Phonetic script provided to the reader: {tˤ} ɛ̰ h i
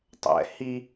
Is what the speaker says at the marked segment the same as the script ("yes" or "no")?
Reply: yes